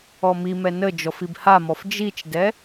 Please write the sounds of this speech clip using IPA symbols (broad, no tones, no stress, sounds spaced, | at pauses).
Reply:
ɔ m i m ɛ n ə d͡ʒ ɔ f i b h a m ɔ f d͡ʒ i t͡ʃ d ɛ